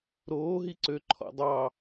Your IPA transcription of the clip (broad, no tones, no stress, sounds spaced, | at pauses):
ɾ oː ɦ i ǀ ø ǃʰ ɔ̰ dˤ ɑ